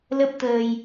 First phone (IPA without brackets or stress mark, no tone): l